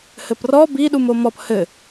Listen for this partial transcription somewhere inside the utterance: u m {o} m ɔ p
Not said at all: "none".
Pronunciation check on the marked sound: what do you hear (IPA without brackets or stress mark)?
o